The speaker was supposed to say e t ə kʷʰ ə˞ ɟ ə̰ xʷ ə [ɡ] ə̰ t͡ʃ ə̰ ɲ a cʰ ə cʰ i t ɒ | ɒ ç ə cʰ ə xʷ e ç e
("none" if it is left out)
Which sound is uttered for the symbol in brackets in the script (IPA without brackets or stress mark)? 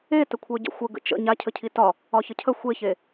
ɡ